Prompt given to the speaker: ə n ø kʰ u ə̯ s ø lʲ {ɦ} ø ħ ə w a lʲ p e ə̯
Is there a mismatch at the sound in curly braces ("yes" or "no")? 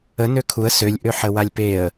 yes